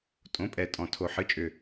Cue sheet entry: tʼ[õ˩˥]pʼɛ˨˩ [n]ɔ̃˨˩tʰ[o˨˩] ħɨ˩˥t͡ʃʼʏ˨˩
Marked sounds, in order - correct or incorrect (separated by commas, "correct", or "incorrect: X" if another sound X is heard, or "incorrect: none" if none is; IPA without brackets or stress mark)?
correct, incorrect: tʼ, correct